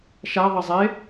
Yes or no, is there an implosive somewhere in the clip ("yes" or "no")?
no